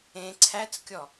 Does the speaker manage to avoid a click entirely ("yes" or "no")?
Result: no